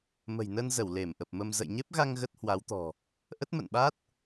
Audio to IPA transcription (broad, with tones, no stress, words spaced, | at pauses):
mə̤˨˩jnə˧nzə˧˩w le˧˩mʔə˨˩p̚mə˧m zə̰˧˨jɲe˦˥p̚ɣa˧ŋ ɣə˦˥t̚hwa˨˦wt̪ɔ̤˨˩ | ʔə˦˥t̚mə̰˧˨nɓa˦˥t̚